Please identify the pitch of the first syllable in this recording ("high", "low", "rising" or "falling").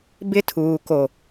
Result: high